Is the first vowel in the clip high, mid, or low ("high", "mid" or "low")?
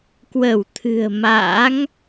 mid